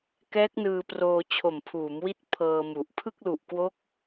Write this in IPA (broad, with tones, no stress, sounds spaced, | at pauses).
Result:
k ɛː˦˥ k̚ n ɯː˧ p r oː˧ t͡ɕʰ o˨˩ m pʰ uː˩˦ m w i˦˥ t̚ pʰ ɤː˧ m u˨˩ ʔ pʰ ɯ˥˩ k̚ l u˨˩ ʔ k w o˦˥ k̚